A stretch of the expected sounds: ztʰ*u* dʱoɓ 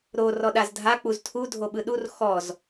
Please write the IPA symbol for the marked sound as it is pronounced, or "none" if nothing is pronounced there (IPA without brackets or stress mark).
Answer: u